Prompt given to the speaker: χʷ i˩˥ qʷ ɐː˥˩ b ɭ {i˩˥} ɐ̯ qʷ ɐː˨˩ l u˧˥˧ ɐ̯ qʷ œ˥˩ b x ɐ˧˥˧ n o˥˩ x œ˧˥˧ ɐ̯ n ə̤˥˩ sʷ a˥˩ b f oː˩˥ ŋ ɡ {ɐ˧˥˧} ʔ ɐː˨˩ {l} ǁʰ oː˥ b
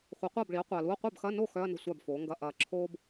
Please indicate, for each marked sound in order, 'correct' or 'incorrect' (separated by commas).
correct, correct, incorrect